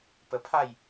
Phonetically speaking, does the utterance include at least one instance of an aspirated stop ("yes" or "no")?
yes